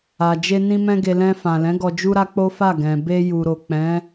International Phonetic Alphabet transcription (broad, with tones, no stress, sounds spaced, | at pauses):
a˨ d͡ʒ e˧ n ĩ˧ m ɛ̃˧ ɡ e˧ l ɛ̃˧ f ã˨ l ɛ̃˨˦ ɡ ɔ˧ d͡ʒ u˧ ɾ a˧ k͡p o˦ f a˦˨ ɡ ɛ̃˨ b e˧ j u˨ ɾ o˨ k͡p ɛ̃˨˦